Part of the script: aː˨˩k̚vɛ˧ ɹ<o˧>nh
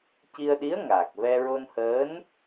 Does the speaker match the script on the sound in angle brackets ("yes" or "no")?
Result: yes